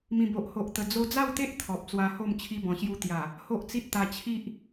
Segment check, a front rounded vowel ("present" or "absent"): absent